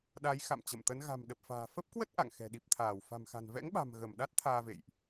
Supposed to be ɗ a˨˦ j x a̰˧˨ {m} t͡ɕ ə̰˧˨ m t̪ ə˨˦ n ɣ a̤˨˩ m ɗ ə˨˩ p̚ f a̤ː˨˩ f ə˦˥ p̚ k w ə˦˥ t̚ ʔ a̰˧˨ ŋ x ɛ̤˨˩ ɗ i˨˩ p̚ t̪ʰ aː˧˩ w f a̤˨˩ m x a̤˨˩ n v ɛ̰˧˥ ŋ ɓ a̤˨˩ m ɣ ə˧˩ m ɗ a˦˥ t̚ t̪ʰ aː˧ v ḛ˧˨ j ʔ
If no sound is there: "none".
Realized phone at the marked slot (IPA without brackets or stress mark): m